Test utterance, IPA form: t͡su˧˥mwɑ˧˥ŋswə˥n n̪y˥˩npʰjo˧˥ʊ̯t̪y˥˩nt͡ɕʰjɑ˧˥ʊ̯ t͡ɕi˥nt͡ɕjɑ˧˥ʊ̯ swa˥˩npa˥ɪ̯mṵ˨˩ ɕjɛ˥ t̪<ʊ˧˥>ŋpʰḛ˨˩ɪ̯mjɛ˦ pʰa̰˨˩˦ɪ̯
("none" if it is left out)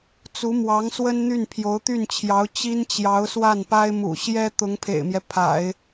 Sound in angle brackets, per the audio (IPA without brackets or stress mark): ʊ˧˥